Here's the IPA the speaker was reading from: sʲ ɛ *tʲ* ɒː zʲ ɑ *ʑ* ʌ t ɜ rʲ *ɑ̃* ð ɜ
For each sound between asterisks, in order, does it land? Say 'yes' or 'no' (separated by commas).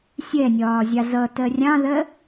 no, no, yes